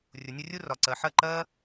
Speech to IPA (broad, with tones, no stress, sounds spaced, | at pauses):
rʲ ʊ˨ nʲ ə˧ rʲ u˦ r ɒ˨ ǀ ɜ˨ ħ ɜ˦˨ ǃ ɜ˦